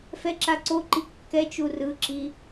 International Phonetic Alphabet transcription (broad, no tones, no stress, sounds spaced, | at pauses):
f ɛ ǁ a ǀ o ǃ i kː ɛ t͡ʃ u r ɯ ǁ i